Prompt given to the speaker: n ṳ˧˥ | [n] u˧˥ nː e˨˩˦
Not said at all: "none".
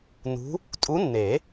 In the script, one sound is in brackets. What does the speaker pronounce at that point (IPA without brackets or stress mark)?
tʼ